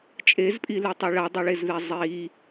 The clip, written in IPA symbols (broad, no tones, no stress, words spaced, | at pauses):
t͡ʃʼezpʼiletˤɛ ɭadˤeɭezðɛ zˤi